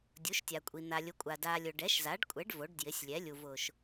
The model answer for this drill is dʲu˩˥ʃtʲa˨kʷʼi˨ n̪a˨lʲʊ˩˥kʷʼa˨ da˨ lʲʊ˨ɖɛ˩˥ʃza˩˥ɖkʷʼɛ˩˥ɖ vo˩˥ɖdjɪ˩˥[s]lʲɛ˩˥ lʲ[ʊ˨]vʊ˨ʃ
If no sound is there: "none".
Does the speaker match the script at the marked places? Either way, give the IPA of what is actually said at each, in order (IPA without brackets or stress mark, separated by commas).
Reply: sʲ, u˨